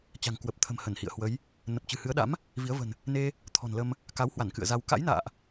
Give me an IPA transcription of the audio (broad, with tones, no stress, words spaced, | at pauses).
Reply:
t͡ɕa̤˨˩ŋ kwə˨˩p̚t̪ʰə̤˨˩m hə˧˩nhḭ˧˨ə̯ hwə˨˦j | nə˨˩p̚t͡ɕɨ̤˨˩hɨ˨˦ə̯ɗa̰˧˥m | vi˨˦ə̯ və̤˨˩n | ne˧ | t̪ʰɔ̤˨˩n lə˧m | ka˨˦whwa˧˩n kɨ̰˧˨ə̯za˧w ka̰˧˥jna̰ː˧˨ʔ